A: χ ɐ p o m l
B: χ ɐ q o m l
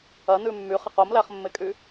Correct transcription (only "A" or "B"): B